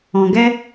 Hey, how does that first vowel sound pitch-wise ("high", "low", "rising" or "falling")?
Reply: low